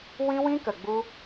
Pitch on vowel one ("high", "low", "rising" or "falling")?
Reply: high